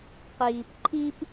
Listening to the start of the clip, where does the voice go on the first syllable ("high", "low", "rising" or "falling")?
low